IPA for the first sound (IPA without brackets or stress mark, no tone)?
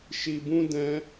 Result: ʃ